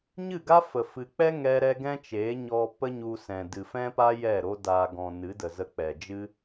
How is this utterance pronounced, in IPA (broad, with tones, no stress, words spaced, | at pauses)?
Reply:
ɲɨ˦˨ɡa˦fə˨ fɨ˨k͡pɛ˦ ŋɛ˦ɾɛ˦ ɡɛ̃˦t͡ʃeː˨˦ɲɔ˧ pə˦ɲu˧ sɛ̃˨ dɨ˨fɛ̃˦pa˦ jɛ˦˨ɾo˦ daː˧ɡɔ̃˧ nɨ˨˦də˨ zə˧k͡pɛ˨d͡ʒɨ˦